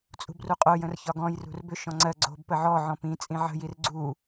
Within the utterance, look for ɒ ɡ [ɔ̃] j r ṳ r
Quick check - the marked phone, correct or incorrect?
correct